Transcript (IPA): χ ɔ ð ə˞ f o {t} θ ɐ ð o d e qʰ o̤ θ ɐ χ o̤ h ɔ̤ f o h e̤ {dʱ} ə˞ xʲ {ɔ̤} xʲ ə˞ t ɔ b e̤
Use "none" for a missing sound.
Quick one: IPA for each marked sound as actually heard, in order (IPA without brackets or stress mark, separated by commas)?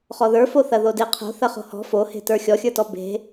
none, t, ɔ